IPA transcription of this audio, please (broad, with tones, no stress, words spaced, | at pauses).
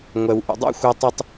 ŋʷɛ˩w ʔṵ˩dˤṵ˥˨ xʷɛ˦tˤy˦tˤ